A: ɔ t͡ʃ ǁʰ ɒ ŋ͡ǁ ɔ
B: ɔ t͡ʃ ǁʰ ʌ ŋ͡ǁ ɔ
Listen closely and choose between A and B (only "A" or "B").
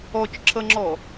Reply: B